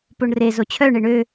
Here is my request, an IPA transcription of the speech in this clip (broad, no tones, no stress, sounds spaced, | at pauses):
p o ɳ r e z o t͡ɕʰ œ ɳ e ɳ ø